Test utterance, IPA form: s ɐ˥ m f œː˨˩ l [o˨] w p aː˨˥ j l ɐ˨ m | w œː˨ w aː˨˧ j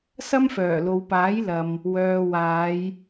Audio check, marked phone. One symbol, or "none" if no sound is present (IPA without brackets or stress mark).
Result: o˨